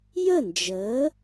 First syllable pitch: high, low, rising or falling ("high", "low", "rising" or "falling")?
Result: falling